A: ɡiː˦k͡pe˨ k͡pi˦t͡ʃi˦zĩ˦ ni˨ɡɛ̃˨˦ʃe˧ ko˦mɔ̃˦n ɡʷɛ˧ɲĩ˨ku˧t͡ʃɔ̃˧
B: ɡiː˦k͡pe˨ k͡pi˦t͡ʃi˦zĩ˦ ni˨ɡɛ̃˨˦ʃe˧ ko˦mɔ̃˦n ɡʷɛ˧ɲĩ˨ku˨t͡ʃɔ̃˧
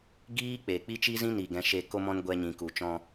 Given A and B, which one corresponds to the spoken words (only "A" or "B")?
B